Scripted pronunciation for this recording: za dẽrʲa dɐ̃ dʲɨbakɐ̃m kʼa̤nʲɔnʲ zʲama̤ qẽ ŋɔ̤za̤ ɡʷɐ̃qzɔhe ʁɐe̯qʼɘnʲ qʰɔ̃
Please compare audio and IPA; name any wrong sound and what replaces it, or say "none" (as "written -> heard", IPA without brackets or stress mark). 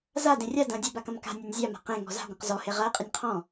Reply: kʼ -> k